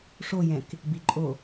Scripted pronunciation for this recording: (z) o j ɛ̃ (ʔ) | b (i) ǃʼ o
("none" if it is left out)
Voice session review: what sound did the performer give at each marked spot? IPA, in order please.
ʂ, k, i

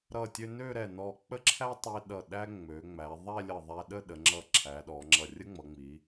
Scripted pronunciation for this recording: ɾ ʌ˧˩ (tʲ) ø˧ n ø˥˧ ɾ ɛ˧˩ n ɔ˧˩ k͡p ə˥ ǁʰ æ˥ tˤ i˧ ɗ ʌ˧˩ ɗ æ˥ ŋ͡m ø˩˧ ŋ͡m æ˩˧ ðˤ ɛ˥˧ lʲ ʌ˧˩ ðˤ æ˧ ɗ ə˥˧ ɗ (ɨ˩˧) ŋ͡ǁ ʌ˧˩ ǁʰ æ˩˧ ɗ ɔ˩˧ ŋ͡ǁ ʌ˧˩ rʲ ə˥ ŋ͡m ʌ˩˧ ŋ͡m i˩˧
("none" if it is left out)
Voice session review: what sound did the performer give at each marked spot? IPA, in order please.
tʲ, ə˩˧

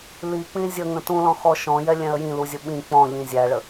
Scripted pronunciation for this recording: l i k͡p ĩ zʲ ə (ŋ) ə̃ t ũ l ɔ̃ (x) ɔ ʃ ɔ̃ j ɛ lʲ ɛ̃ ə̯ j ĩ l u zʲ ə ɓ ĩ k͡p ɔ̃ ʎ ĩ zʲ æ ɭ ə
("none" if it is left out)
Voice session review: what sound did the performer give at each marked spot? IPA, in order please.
ŋ, x

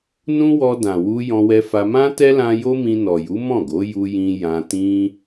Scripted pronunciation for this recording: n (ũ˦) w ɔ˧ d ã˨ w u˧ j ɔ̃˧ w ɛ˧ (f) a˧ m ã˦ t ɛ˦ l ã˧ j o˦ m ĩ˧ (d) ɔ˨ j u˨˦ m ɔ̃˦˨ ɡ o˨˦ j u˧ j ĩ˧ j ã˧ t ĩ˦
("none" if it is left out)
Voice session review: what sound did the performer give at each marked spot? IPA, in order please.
ũ˦, f, n

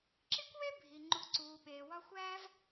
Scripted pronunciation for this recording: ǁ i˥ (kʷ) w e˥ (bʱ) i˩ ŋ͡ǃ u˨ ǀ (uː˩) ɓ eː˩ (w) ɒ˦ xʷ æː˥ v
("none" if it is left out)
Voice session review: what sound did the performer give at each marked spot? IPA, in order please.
kʷ, bʱ, uː˩, w

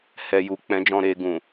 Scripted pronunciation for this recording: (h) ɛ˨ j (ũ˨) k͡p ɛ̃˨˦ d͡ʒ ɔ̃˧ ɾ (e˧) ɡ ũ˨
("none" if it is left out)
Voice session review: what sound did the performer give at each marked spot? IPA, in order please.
h, u˨, e˧

